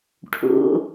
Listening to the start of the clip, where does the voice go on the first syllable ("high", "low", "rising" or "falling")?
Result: low